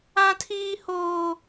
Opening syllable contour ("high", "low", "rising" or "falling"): high